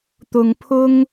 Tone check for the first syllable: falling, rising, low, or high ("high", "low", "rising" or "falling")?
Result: low